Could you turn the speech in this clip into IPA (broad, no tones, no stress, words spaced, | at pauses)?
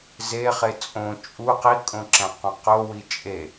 zeχe t͡sʼõ t͡ʃʼu qikʼõǁæ̃qũ qowi t͡ʃʼe